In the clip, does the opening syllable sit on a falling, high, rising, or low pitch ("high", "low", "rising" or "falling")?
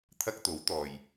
high